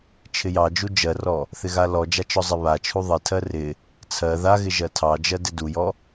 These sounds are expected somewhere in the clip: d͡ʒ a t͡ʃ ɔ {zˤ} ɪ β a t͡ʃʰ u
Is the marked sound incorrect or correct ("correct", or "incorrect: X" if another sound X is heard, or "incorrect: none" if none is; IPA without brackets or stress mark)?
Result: correct